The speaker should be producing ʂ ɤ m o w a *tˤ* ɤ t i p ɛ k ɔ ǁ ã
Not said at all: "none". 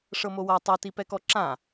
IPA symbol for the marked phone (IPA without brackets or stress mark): tˤ